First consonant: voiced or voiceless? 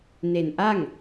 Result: voiced